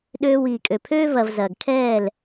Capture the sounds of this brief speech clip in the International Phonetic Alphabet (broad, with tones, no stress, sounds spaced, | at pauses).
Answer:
ɗ øː˧ w iː˨ kʼ ø˨ pʰ øː˦ v ɐ˨ v z ɐː˨ ɡ kʰ ɛː˦˨ l